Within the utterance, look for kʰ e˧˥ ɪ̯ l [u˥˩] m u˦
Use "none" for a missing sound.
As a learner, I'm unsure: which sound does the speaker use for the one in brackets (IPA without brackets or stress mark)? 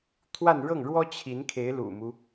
ṵ˨˩